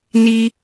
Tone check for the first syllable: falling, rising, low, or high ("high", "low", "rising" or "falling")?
high